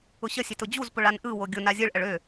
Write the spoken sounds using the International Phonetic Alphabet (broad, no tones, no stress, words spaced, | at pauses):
ʊɕəsʲøt ʊd͡ʑuzpʊɭ anʔɯwo ɡʲʊ nazʲɯɭʔəɭ ø